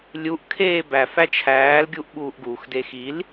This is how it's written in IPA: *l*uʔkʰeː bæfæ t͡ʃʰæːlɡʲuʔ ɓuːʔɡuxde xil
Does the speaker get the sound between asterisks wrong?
yes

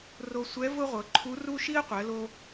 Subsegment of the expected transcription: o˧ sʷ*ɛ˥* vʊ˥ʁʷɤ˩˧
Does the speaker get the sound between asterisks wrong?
yes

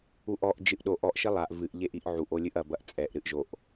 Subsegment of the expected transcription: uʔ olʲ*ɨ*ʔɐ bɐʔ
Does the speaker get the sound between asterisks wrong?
no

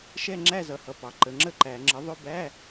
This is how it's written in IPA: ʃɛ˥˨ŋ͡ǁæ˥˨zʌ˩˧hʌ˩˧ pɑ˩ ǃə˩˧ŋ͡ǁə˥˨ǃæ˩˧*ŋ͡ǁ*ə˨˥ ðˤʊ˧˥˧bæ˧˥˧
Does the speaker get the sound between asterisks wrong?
no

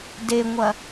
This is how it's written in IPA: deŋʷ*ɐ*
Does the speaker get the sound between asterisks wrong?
no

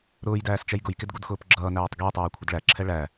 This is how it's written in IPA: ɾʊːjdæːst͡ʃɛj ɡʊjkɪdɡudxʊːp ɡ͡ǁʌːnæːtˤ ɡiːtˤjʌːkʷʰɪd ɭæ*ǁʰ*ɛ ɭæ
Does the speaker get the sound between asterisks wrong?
no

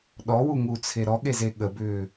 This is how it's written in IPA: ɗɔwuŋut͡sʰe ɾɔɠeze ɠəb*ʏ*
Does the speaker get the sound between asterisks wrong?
yes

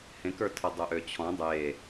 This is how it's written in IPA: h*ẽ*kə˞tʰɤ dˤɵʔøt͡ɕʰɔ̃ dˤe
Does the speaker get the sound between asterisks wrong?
no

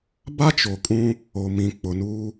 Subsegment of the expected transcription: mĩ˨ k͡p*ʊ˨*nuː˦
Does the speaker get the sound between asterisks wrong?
no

